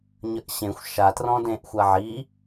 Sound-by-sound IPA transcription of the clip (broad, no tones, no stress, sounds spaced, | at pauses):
ɲ ə ʔ ɕ ẽ xʷ ʃ a t r ɔ̃ d ẽ ʔ xʷ a ʕ i